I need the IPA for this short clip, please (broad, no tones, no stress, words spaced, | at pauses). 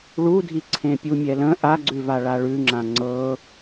ɭudʱi ǀʰẽpʲumʲɛlə̃ ʔaɡ͡ǀʉva ɭaɭʉŋ͡ǁã ŋ͡ǀɤ